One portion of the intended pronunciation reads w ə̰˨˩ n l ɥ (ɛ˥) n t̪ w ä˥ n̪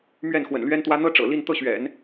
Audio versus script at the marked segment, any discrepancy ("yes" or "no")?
no